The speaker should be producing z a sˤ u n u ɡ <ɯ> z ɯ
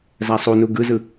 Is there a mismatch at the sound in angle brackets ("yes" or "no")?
no